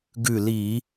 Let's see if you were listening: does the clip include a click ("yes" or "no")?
no